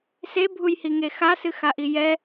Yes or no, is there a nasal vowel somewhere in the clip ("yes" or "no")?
no